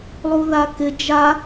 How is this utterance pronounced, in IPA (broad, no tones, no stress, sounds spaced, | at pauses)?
lˠ u ð a k ɪ d͡ʒ a